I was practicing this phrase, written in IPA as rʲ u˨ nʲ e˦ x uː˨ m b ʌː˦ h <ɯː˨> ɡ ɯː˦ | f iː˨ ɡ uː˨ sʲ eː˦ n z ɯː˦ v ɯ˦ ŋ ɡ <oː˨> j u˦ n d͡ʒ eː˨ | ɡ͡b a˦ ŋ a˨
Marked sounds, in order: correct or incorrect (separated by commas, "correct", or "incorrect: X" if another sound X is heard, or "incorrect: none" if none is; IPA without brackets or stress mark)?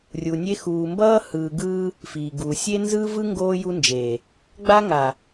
correct, incorrect: oː˦